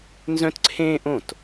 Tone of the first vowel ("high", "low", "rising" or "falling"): high